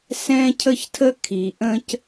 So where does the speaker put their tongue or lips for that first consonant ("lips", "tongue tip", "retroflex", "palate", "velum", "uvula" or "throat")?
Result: tongue tip